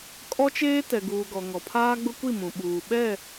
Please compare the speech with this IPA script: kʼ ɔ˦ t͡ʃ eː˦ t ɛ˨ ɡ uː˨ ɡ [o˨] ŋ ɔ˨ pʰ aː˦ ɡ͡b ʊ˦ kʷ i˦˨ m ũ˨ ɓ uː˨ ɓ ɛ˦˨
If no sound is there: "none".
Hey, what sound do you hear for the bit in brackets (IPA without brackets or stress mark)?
ɔ˨